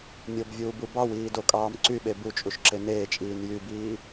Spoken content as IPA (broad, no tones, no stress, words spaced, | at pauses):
mʲobvʲuːbu bɑwiːdokʼɑːm ǀyɓe but͡ʃʼuʃǁe neːt͡ʃʼiːn jybiː